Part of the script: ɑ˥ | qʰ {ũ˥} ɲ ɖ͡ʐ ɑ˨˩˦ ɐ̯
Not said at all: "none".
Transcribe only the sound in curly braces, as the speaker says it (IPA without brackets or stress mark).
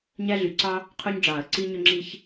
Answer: u˥